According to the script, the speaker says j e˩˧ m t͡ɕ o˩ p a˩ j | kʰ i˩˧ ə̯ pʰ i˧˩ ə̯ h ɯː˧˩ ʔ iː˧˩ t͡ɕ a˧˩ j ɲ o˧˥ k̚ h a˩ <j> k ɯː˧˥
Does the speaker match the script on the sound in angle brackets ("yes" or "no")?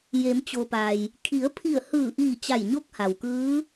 no